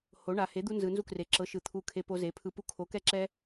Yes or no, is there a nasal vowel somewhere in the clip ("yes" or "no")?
no